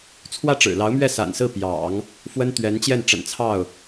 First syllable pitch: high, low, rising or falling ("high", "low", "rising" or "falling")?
falling